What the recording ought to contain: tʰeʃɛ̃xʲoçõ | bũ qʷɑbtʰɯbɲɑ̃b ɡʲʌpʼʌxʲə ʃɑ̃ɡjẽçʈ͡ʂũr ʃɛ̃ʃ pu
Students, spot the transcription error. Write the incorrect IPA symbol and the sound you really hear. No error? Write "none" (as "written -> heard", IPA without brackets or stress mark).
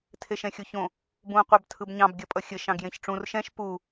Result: none